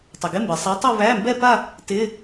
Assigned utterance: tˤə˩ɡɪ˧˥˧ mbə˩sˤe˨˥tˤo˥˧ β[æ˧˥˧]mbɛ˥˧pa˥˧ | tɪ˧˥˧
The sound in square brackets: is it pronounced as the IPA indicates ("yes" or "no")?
yes